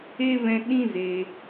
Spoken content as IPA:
e˦ v ɛ̃˧ ɗ ĩ˦ z e˧

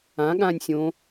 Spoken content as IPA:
ã ɠ ãː nʲ sʲ õ

